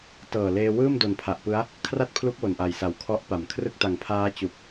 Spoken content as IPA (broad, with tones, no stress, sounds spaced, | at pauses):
t ɤː˨˩ l eː˧ w ɯː˥˩ m d o˨˩ n pʰ a˨˩ ʔ p ɯ˦˥ a̯ | kʰ r a˥˩ t̚ pʰ l u˦˥ k̚ w o˨˩ n ʔ a˨˩ j s a˨˩ w kʰ ɔ˦˥ ʔ p a˨˩ m kʰ r ɯ˥˩ k̚ t a˨˩ ŋ pʰ aː˦˥ t͡ɕ u˨˩ k̚